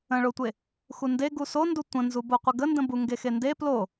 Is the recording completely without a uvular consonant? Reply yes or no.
no